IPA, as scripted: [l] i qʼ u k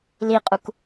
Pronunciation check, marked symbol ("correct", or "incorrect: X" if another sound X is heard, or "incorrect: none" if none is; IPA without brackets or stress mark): correct